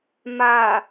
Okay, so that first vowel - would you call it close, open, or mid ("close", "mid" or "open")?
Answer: open